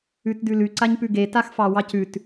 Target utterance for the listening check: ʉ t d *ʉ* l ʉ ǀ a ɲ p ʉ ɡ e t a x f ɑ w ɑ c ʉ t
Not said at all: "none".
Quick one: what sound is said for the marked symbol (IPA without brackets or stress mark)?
ʉ